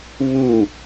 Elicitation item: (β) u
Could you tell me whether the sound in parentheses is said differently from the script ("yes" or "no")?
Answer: no